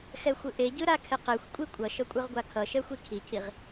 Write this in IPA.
xɛxʷɯʔeɟɯ ɾakʰeqexʷkʷʼi kʷʼʌʃʌkʷʼɯʁɡʷa kʰʌʃɛxʷi kʰicʰiʁ

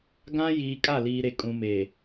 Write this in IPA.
ɡã˦ jiː˨kʼa˦˨liː˨ɾe˨ kʼũ˨meː˨

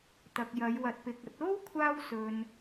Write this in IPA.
t̪ɐ˨k̚jɐ˨˧j wɐ˨t̚pɪ˨k̚ɐ˨˥t̚ o˥w kʷʰaː˧wsɵ˨n

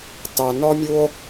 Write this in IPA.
tɑ˨nɔ˦mʲu˦o̯

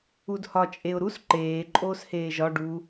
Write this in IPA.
udhɒ t͡ʃʼeʊ̯ɾus ǃeː ǃʼoːsheːʒɒ ɖu

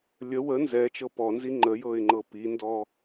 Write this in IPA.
lʲə wə nzɛ t͡ʃɤpɔnzi ŋ͡ǃəjɤɪ̯ ŋ͡ǃɤpindɔ

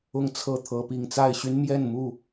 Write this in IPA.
ʊ˥˨ŋt͡sʰɤ˥˨t̪ʰɤ˨˦ pi˨˩ŋt͡sa˥˨ɪ̯ɕy˦n mjɛ˥˨nmu˥˨

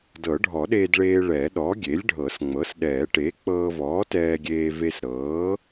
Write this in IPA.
dɤ˨˩˦ɖʱɔ˨˩˦ ɗeː˧dɭeː˧ ɭɛ˨˩˦ɗɔ˩˥ ɡʲe˩˥lʲɖʱɤ˨˩˦sŋ͡mɤ˩˥sɗɛː˨˩˦ ʈe˩˥k͡pɤː˧vɔː˩˥ tɛː˧ɡʲeː˧ve˧s ɾɤː˩˥

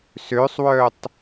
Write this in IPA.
søsˤwœtˤ

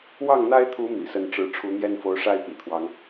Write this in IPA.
wɑ˥˩ŋn̪a˥ɪ̯t̪ʰu˧˥ mḭ˨˩sə˥˩nʈ͡ʂɻ̩˥ ʈ͡ʂʰu˧˥n̪jɛ˥nfo˧˥ʊ̯ʂa˥ɪ̯ pḭ˨˩t̪ʰwɑ˦ŋ

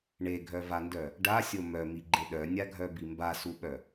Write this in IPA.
ɳeɡʱœvandœ | ɖasʲo mœmiɡ͡ǃe ɗœnʲaɡʱœbi mbasuɓœ

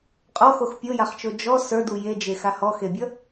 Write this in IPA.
qʼɔxox pʲojaχt͡ʃo d͡ʒɔ sə˞du jed͡ʒe xahɔxebʲʌ

